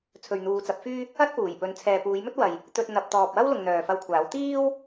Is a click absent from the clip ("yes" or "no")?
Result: yes